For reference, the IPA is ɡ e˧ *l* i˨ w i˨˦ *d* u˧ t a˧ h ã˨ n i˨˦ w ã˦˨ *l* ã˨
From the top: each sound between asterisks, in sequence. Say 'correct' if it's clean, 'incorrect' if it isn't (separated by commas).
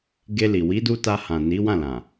correct, correct, correct